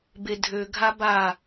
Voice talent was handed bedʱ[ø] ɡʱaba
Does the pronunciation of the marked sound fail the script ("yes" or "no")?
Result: no